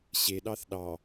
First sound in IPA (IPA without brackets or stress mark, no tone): ɕ